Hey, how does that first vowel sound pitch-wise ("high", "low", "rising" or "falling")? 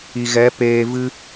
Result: low